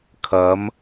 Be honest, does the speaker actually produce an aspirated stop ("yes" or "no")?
yes